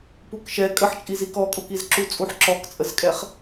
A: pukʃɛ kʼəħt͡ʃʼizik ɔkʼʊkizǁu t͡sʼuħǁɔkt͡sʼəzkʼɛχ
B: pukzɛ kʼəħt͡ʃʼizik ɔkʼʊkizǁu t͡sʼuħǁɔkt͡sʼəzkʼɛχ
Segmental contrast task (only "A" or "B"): A